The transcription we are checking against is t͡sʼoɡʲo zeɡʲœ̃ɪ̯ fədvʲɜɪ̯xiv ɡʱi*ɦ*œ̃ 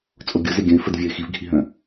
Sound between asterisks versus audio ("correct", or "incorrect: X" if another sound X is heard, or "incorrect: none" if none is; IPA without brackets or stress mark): correct